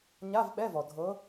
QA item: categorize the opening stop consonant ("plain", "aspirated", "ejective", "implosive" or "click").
implosive